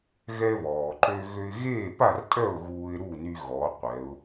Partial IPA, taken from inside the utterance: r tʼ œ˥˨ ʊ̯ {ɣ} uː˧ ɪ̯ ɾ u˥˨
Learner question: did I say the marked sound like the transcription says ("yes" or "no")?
yes